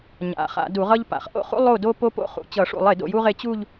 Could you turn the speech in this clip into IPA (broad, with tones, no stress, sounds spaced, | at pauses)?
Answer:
ɲ a̰˩˥ χ a̰˧˩˧ d u˧˩˧ ʁ ʌ˥ ʎ p a̰˧˩˧ χ ʔ o̰˥˧ χ ṵ˥ lˠ o˥˩ d o˥ p o˥ p o̰˥ χ ṵ˧˩˧ t͡ɕ ʌ˧˩˧ ʂ ṵ˧˩˧ lˠ e˧˩˧ d o̰˥˩ j u˥ ʁ e˥˧ t͡ɕ u˥˧ ʎ